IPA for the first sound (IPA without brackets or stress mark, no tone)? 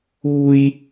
uː